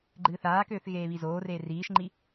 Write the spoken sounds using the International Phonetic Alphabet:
ɡ͡ǃɨːθaːkøːθ ɣeːβizoːreː riːʃŋ͡ǃi

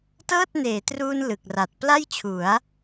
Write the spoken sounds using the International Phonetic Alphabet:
tɤː˥˩t̚neː˩˦truː˧n lɯ˨˩k̚ra˨˩t̚ pla˥˩jt͡ɕʰu˩˦a̯

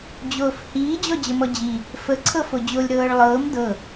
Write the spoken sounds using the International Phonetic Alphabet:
d͡ʑoːfhiː d͡ʑɔd͡ʑəmɔd͡ʑi | fə ǀʰɤfod͡ʑolʲ ɾɤːɭlˠɤːm dɤ

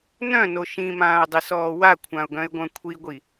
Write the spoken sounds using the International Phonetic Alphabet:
nœ̃no ʃĩmãːʊ̯dˤisɔː wakʷʰãʊ̯ɡœ̃ɪ̯ɡʷœ̃ kʷʰiɡʷi

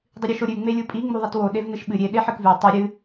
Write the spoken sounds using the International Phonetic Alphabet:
dˤɨɾʲʉʃoɾʲʉ ŋ͡melʲupʼi ŋ͡muðˤitwo ɗevnɨʃɓɨ ɾʲe ɗeħɨkvʉ tˤi ɾʲɨ

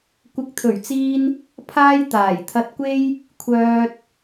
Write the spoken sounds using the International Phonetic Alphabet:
kʷɪ˨˥k̚t̪ʰɵ˨˩ɥt͡siː˧n | pʰaː˥j t̪aː˨˩jt̪ʰɐ˧t̚kʷe˥j | kʷʰœː˧t̚

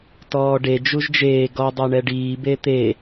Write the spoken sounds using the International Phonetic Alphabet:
tɔːɖe d͡ʒuʒd͡ʒeː ɡɔ dˤɛɳɛɖiː bet̪e

